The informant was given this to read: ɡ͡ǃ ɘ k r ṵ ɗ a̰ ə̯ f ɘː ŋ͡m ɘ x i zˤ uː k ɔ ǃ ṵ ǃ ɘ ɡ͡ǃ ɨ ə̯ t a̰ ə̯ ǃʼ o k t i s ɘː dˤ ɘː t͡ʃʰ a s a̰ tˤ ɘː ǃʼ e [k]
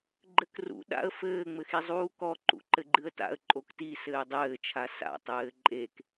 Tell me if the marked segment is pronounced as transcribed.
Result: yes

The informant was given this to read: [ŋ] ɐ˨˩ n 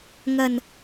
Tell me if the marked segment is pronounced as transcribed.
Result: yes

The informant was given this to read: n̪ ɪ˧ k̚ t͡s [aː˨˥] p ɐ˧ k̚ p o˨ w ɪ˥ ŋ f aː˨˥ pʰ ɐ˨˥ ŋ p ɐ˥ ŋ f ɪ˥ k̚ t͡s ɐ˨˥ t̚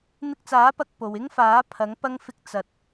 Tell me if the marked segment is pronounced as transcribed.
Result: yes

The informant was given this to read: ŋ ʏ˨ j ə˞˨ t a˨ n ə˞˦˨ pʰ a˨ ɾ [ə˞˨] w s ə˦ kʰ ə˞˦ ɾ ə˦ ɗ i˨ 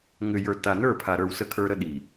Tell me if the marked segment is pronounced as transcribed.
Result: yes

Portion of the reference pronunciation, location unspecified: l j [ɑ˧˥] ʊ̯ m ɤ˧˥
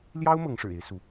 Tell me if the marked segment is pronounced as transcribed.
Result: no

